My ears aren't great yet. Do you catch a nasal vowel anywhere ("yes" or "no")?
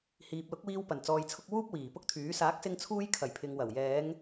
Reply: no